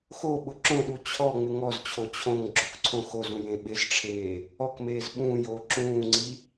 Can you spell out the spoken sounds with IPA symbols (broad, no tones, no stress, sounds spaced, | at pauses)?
x o ɓ ʊ ǁ õ ɗ u t͡ɕʰ ɔ ŋ͡m ɪ ŋ ɔ z t͡ɕʰ o t͡ɕʰ õ ŋ ɡ͡ǁ o k ǀʰ õ x o z ũ j ẽ ɓ ɪ z ʈ͡ʂʰ eː | ɔ k m eː z ɓ ũː j oː ǁ ũː ŋ͡ǀ i